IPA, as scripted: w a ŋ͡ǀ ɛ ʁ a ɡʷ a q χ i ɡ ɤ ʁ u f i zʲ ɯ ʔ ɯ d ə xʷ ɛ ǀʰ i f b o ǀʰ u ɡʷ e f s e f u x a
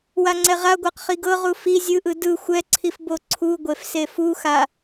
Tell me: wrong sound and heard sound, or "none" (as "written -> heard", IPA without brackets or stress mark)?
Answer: ə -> ɯ